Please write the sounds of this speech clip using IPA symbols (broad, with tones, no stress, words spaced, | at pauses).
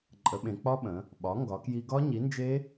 ǃʼə˩˥ɓẽ˩˧k͡pɒ˦˥ɓə̃˩˧ | ɓɒ˩˥ ŋɡɒ˩˧kji˧ ɡɒ˦˥ɲi˩˥nd͡ʒe˦˥